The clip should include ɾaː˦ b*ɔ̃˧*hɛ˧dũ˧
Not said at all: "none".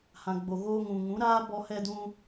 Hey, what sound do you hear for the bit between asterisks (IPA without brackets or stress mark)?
ɔ˧